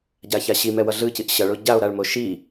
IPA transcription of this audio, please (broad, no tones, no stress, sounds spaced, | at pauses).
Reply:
ɟ a ç a ɕ i m ɛ w ʌ ɮ ɯ c i ʔ ɕ ʌ ɭ o ɟ a o̯ ɾ a ɭ m o ʃ i